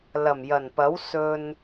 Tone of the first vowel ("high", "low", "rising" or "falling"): low